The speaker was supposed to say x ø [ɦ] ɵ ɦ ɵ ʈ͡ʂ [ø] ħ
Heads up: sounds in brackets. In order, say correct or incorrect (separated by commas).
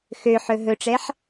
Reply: incorrect, incorrect